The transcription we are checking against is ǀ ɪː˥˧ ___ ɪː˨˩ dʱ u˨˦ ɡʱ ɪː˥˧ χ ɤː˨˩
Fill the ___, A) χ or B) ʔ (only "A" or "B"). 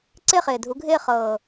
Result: A